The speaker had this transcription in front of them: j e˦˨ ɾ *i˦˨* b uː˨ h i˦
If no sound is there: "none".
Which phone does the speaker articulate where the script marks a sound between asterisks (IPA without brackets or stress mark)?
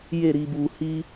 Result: i˨